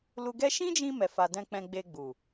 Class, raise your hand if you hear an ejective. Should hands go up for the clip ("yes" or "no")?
no